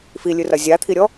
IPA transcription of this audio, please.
filʲɨrɐ zʲat̪ʰiɾʲɔ

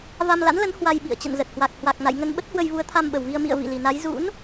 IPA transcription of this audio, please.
va˧mla̰˧˥nlə˨˦n hwa˧jɓḭ˧˨ə̯ t͡ɕə̰˧˨nzə˨˩t̚hwa˨˩k̚ hwa˨˩k̚na̰˧˨j ŋə˧nɓə˦˥t̚hwə˧jvu˨˦ə̯ t̪ʰa˧mɓə˨˩wvi˧ə̯ mḭ˧˨ə̯ vḭ˧˨li˨˩na˨˦j zṵ˧˥n

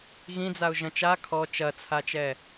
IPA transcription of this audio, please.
ɣĩd͡zaʊ̯ ʒɐ̃t͡ʃa kʰɔ t͡ʃɐt͡sʰat͡ʃɛ

